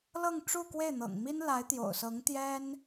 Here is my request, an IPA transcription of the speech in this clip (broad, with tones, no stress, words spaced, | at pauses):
lɤ˥˧ŋʈ͡ʂu˥˧ kwe˥˩ɪ̯n̪ɤ̰˨˩ŋmi˥n la˧˥ɪ̯t̪jo̰˨˩ʊ̯sɤ˧˥ŋ t̪jɛ˥n